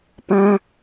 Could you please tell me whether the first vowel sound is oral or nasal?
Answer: nasal